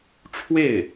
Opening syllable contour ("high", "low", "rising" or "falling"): falling